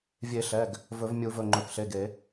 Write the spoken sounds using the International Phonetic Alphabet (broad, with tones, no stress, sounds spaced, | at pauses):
vʲ e˨˩˦ ɬ ɛ˩˧˩ ɡ | v ɵ˨˩˦ v mʲ u˨˩˦ v ɵ˩˧˩ ŋ͡ǃ ɵ˩˧˩ k ɬ e˩˧˩ ɡ e˨˩˦